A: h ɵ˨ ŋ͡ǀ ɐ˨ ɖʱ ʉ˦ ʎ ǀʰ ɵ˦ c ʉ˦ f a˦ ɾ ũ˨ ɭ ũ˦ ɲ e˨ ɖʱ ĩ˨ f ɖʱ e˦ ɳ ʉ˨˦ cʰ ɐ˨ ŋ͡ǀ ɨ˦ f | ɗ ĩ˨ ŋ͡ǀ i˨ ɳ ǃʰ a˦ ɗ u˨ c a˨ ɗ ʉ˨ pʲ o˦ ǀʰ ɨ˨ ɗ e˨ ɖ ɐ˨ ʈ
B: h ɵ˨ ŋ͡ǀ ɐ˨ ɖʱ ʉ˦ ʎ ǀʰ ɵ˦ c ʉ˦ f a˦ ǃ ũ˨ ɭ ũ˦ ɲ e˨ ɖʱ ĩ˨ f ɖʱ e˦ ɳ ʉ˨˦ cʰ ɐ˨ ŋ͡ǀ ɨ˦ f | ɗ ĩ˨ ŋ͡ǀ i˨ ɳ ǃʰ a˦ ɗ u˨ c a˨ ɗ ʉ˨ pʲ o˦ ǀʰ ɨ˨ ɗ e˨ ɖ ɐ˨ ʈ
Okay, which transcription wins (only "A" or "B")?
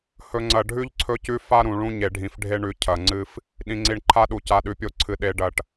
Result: A